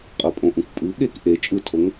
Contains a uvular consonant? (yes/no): yes